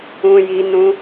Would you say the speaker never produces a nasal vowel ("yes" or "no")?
no